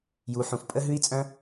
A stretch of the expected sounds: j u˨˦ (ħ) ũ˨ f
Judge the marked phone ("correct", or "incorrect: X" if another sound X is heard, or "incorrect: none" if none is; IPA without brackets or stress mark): correct